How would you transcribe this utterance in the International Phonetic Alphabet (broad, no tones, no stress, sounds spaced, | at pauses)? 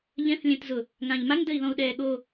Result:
ʎ ɛ̃ θ lʲ ɛ̃ t z ʊ | ŋ ã ʎ m a ŋ d ə i̯ ð ɔ̃ u̯ ɗ ɛː ɠ o